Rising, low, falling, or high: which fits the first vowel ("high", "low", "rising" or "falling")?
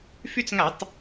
high